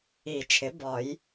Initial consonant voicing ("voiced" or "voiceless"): voiceless